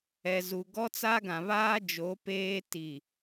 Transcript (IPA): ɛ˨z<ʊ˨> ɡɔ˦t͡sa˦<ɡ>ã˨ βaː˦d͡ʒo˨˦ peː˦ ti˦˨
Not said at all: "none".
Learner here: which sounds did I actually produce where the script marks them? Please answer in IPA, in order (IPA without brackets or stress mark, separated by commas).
u˨, ɡ